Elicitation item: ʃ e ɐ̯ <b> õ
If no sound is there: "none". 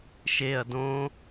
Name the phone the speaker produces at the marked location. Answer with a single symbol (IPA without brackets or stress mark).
d